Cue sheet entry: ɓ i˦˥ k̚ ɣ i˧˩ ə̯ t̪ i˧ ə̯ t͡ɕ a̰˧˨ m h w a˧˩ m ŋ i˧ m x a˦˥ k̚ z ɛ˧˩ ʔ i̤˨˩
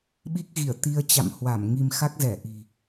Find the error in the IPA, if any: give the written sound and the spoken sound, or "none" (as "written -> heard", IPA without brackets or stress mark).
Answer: none